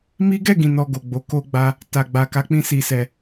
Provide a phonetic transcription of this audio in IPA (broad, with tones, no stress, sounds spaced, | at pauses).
m i˦ ɡ ɛ˦˨ ɡ ĩ˨ n ɔ˧ ɡ o˨ ɡ͡b o˨˦ k o˧ ɡ͡b a˧ | t a˨ ɡ͡b a˨ k a˨˦ k͡p ĩ˧ s i˨ s ɛ˨